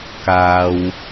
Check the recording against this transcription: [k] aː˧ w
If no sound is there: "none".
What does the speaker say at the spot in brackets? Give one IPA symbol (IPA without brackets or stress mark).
k